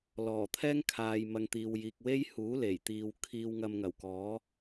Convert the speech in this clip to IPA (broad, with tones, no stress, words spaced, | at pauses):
lɔː˨˩t̪ʰɛː˥ŋkʰaː˨j mɐ˨ŋt̪iː˨wjiː˨k̚ we˥jhuː˨˥ le˨˩j t̪iː˧w kʰiː˧wŋɐ˧mŋɐ˨˩wkɔː˨˥